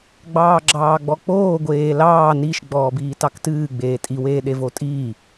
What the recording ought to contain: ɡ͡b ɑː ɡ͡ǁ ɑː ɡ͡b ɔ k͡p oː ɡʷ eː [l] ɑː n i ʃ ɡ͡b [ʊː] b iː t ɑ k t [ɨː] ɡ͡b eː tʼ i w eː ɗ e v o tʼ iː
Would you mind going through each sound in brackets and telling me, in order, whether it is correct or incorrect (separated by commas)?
correct, incorrect, correct